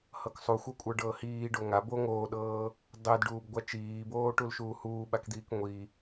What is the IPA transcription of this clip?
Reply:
hɤksˤuxʷɤkʷʼə˞ ɖɤːhiːɖo ŋa bo ŋoːɗɤː | dˤedɖuːbɡʷa t͡ʃiːboːʈulʃuː huːɓakd̪iːk ŋʷi

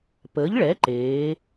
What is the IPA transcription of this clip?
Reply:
pəː˩˥ʎɭɛ˩˥ǃeː˩˧

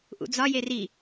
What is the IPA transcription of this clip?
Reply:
ʔṵd͡zɒje ri

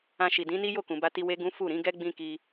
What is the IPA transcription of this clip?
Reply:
ã˧ʃi˨dĩ˨˦ni˦ jo˦˨kũ˨ba˧ti˧ we˦ɡũ˦ fu˦˨ɾĩ˨˦ɡɛ˦ ɡ͡bĩ˧ki˧

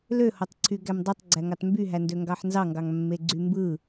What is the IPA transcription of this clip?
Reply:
løhotˤǀʰy ɡæmdˤɯtˤɡ͡ǀæŋɑt mbyɦændøŋɡɑħ nzɑŋɡɑŋ mːeɡ͡ǀymbɯ

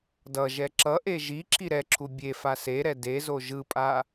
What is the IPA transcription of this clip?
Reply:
dʌʒɛ ǁʌʔe ʒi ǁʰiɾɛǁʰu bʲe faseɾɛ dezo ʒɯpʼa

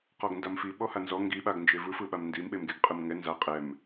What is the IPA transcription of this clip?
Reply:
qɔɡndamfi ɓɔhanzɔ ŋɡiɓaɡnd͡ʒe vɯfɯɓam ndim ɓemɡeɡqʼɯmŋɛ nza qʼɛm

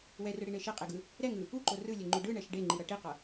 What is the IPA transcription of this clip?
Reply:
wɛrɯɽiɳe ʃeqʼeɡɯ | ɾɛŋɯ | uǃo rɯlʲɛŋ͡ǃu ɖɯɳɛʃ ɖeŋ͡ǃiɾʌ ʈiqʌ

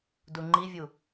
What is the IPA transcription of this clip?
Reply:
duŋ͡ǃivʲu

